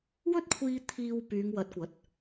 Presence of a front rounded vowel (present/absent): present